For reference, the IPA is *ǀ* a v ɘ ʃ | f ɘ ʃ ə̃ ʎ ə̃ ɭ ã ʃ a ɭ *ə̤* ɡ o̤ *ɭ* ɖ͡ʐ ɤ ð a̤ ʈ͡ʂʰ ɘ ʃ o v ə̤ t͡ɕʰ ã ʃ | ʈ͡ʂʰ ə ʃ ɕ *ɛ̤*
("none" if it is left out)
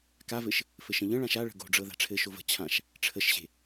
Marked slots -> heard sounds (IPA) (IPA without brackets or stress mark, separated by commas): k, ə̤, none, e̤